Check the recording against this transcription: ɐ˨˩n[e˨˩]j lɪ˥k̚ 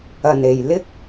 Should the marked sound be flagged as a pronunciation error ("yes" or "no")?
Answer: no